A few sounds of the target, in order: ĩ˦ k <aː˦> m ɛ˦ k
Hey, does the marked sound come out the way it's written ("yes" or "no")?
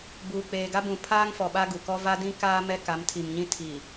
yes